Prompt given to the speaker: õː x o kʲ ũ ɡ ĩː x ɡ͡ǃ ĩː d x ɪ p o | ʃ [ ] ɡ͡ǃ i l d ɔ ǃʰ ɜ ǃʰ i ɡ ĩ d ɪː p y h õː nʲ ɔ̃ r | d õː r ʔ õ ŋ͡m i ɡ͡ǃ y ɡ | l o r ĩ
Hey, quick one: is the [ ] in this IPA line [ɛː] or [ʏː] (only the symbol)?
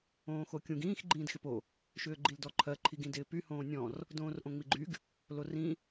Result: ʏː